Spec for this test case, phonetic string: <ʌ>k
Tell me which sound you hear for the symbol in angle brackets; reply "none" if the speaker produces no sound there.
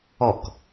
ɔ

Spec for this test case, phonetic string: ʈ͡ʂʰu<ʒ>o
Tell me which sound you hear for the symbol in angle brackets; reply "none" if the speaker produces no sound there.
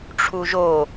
ʒ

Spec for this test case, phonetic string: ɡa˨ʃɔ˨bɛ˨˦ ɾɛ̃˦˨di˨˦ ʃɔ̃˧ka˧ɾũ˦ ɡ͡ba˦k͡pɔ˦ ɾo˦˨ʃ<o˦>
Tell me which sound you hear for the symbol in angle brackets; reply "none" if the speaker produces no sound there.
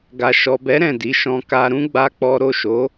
o˨˦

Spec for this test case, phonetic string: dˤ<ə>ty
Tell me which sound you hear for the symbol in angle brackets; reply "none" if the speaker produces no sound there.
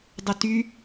ə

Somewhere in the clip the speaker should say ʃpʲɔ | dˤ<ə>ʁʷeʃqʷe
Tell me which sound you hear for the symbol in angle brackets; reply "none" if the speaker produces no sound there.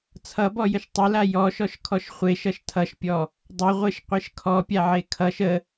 ʌ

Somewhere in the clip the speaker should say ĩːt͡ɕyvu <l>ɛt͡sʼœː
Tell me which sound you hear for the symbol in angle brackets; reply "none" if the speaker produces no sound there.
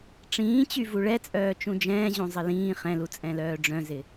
ɭ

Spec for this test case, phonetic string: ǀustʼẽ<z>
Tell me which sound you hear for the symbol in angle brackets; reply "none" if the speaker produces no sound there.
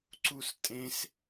s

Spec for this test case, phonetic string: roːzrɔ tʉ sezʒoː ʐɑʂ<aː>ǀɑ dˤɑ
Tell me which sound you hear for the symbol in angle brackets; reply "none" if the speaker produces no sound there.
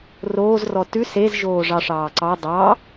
ɑː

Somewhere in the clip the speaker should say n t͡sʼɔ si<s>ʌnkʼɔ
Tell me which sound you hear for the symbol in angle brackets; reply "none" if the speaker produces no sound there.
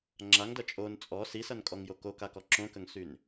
s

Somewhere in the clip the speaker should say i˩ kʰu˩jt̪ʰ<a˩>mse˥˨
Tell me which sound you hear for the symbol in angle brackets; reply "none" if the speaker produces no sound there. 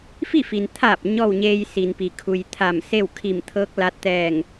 a˧˩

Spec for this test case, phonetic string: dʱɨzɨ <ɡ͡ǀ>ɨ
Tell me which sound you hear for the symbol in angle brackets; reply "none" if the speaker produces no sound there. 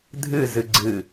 ɡ͡ǀ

